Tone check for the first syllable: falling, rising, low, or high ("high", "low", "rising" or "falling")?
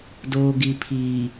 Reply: low